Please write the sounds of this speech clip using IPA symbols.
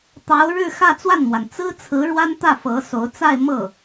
t̪ ɑ˧˥ ʊ̯ ɻ ɻ̩˥˧ x ä˥˧ t͡s w a˥˩ n m w a˩ n t͡s ɹ̩˥ t͡sʰ ɹ̩˧˥ ɻ w a˥ n t̪ ä˥˩ f ɤ˧˥ s o˧˥ ʊ̯ t͡s a˥˧ ɪ̯ m ɤ˥˩

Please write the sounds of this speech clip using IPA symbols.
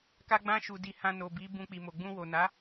k a˧ ɡ͡b ã˧ ʃ u˨ d i˨ h ã˧ n o˨ b i˨˦ b ũ˧ k͡p i˨ m o˨ ɡ͡b ũ˧ w o˨ n a˨˦

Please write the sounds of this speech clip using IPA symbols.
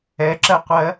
ɛ ǁ ɜ qʷ ɜ

